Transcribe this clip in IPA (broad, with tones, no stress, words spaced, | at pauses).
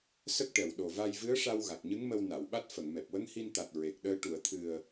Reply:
sə˦˥k̚ʈɛ˨˩w ɗo˨˩va˧jvɨ˧˥ə̯ʂa˧w ɣa˨˩k̚ɲɨ˧˥ŋmə˧w na˨˩˨wɓa˦˥t̚ fə˨˩˨ŋmɛ˨˩p̚ wə˧˥ŋhi˧nt̪a˨˩t̚ ɹe˨˩k̚ɗəː˧ ʈu˨˩˨ə̯t̪ʰɨ˨˩ə̯